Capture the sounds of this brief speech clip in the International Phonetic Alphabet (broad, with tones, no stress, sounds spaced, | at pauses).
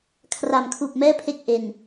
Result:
kʰ r a˨˩ m kʰ uː˨˩ p̚ m ɛː˥˩ pʰ e˦˥ k̚ ʔ e˨˩ n